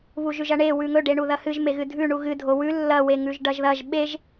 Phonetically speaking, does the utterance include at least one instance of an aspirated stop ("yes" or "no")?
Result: no